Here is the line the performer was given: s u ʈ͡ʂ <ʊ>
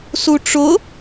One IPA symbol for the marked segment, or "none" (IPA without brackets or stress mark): ʊ